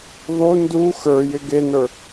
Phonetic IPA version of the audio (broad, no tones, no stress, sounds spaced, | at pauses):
ðˤ u n d u x ə˞ j ɪ ɡ e n ə˞